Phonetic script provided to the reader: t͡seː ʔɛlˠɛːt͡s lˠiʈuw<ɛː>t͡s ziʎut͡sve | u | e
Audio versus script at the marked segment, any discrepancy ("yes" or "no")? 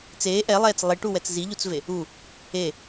yes